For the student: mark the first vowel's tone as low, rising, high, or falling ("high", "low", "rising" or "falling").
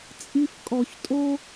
high